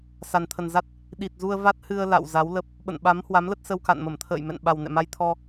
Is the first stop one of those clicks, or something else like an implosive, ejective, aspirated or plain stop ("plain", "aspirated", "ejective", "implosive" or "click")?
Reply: aspirated